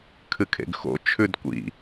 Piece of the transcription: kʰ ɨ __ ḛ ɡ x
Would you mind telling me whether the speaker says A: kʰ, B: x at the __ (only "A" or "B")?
A